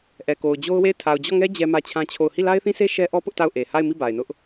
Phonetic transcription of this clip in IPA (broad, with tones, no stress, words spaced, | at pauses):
ʔɛ˨ko˨ʊ̯d͡ʑo˦ʊ̯we˦˨ɪ̯ tʰa˨ʊ̯d͡ʑɔ˦˨ŋɛ˦ d͡ʑɛ˦mä˦t͡ɕʰã˦t͡ɕʰo˦˨ʊ̯ hi˦˨la˦ɪ̯θĩ˦se˦ ʃɛ˦ʔɔ˦ pʊ˦ʔta˦˨ʊ̯ ʔe˨ ha˦˨ɪ̯mi˦˨ ba˨ɪ̯nʊ˦ʔ